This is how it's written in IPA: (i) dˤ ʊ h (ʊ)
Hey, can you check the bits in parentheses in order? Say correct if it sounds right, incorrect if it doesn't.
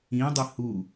incorrect, incorrect

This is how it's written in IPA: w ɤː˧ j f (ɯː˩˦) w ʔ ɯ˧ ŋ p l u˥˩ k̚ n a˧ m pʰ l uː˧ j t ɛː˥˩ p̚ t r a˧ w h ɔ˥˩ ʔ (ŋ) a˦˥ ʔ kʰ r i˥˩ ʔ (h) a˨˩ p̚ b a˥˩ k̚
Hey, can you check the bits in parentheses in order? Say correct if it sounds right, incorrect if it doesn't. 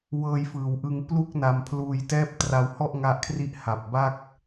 correct, correct, correct

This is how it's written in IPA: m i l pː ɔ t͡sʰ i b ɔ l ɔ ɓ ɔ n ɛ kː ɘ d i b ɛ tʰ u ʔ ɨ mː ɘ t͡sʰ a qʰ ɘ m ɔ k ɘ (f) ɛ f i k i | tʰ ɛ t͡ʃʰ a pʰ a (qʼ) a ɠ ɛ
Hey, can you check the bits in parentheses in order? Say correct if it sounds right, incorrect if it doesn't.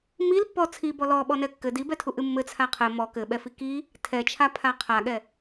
incorrect, incorrect

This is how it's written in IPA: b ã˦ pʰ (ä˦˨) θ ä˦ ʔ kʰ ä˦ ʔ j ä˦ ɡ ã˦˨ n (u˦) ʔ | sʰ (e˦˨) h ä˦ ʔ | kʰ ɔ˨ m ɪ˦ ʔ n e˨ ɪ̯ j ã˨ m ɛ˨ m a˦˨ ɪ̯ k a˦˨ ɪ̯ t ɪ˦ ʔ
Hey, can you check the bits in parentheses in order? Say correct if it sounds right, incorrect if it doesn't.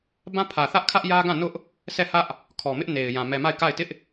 incorrect, incorrect, incorrect

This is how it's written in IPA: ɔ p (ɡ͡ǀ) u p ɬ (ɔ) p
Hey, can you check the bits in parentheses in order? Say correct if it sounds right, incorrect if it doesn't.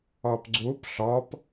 correct, correct

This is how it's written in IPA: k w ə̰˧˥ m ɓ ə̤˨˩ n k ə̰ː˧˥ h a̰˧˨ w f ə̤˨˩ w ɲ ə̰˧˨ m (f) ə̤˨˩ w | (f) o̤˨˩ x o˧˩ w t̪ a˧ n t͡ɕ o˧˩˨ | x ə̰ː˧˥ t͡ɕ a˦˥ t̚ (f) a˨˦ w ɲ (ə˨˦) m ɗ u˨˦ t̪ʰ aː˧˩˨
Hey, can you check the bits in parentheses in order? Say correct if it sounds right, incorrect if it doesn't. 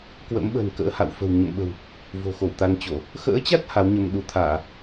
incorrect, incorrect, incorrect, incorrect

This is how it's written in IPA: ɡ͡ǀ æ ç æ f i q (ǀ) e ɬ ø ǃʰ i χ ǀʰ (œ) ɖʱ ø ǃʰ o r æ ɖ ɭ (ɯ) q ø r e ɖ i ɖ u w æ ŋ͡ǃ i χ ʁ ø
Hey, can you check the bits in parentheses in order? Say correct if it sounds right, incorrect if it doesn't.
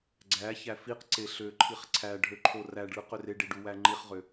correct, incorrect, correct

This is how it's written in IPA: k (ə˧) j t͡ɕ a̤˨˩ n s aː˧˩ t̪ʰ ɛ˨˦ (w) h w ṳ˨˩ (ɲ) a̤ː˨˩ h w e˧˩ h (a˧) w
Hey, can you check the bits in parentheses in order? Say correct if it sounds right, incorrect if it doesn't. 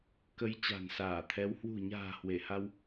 incorrect, correct, correct, correct

